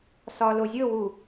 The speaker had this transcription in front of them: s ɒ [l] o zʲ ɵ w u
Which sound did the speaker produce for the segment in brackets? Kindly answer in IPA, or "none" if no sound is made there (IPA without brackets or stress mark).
l